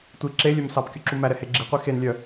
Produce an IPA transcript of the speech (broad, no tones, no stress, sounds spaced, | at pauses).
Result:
tʷ i ǁ e lʲ œ m s ɑ p kʲ u ǁ u m æ ɾ ɛ h e ɡ͡ǁ i qʷ e x e n lʲ œ